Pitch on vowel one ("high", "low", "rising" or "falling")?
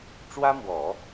high